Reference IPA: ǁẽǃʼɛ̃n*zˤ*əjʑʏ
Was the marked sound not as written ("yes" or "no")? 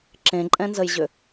yes